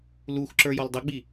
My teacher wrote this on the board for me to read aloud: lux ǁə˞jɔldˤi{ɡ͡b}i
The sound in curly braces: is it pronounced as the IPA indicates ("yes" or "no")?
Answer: yes